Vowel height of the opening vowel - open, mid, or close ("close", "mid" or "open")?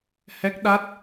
mid